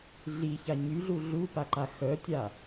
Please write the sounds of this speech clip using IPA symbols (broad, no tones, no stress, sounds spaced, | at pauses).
ɮ i ç a ɲ y ɮ u ɮ u p a ǃ a x œ tʲ a